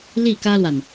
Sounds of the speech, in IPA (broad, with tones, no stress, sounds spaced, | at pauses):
l i˥˩ k ä˥ l w a˨ n